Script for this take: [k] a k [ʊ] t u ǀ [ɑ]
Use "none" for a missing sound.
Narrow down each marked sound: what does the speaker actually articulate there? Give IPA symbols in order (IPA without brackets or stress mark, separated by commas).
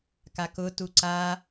k, ʊ, a